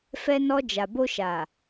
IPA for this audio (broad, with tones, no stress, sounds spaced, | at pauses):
f ɛ˧ n ɔ˧ d͡ʒ a˨ b o˧ ʃ a˨